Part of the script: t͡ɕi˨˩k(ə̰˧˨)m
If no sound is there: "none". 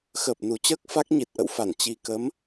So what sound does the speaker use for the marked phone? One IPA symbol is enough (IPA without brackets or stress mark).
ə˨˦